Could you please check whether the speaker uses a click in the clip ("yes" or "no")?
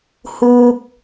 no